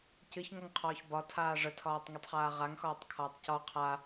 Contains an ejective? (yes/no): no